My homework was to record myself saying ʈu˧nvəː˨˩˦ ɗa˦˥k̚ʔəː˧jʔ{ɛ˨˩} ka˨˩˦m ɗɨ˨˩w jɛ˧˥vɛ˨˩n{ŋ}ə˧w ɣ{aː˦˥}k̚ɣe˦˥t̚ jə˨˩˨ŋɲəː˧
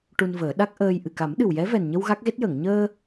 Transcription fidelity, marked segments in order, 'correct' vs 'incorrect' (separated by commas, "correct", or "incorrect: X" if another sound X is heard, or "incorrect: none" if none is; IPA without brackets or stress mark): incorrect: ɨ˨˩, incorrect: ɲ, incorrect: a˦˥